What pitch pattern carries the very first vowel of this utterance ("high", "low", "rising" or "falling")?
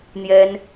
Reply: high